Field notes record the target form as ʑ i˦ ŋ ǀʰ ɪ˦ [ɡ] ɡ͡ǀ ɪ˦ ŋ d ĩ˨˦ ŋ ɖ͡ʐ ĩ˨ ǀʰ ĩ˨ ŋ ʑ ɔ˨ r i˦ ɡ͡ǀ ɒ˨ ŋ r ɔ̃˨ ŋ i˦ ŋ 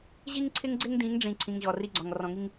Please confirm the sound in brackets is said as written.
no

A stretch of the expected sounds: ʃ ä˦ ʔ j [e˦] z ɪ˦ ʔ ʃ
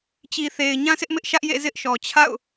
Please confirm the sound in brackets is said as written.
no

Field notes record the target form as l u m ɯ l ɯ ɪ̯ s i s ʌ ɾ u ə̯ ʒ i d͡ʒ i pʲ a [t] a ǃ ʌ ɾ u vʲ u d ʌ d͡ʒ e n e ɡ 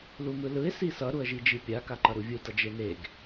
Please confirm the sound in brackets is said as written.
no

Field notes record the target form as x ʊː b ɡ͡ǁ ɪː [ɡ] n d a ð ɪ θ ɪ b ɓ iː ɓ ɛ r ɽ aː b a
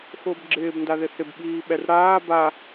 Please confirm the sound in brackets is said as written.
no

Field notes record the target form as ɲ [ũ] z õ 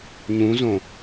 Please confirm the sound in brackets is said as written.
yes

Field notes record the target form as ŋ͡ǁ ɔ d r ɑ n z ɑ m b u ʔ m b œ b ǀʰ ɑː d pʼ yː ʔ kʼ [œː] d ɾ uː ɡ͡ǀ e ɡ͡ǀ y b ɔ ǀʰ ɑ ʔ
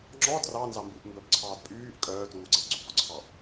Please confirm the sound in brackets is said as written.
yes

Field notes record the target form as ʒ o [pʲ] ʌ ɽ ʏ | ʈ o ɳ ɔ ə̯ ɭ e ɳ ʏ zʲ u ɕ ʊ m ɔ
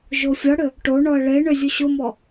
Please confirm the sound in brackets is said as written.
no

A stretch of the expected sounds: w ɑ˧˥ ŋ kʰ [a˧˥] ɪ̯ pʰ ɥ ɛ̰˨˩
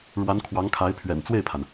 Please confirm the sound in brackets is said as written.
yes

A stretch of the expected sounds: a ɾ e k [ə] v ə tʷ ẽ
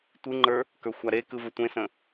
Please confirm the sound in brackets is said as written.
no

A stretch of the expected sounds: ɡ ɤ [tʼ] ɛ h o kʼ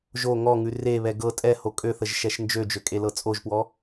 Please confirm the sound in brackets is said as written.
yes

